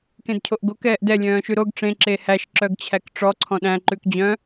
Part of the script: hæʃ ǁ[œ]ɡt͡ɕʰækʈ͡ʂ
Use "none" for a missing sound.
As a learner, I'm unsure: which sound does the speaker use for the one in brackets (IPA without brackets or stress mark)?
œ